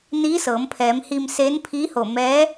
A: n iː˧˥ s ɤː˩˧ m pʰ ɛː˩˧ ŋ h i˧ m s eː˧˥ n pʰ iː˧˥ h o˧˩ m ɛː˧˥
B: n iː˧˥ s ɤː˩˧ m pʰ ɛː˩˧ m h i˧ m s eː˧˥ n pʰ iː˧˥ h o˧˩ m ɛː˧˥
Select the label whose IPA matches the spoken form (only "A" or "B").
B